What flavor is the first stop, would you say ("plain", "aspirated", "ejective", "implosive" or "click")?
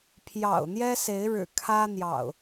aspirated